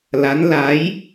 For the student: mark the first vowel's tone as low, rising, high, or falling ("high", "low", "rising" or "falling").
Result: rising